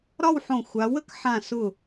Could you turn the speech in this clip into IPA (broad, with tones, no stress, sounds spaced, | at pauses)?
ɾ ɒ˥˧ w ħ õ˧˩ xʷ a˩˧ w ə˥ k ħ ã˧˩ s ʊ˧˩